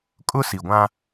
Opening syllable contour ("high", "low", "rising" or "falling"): high